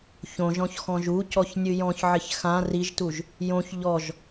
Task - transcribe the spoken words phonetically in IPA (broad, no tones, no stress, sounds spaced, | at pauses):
ç õ ʒ ɔ̃ ç x ɔ̃ ʒ u c ɔ ç nʲ ɨ j ɔ̃ ç ʕ ɪ ç x ã r i ʒ t u ʒ | j õ ç ʎ ɔ ʒ